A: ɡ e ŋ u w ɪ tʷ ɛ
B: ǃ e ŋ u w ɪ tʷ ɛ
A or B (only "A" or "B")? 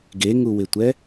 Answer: A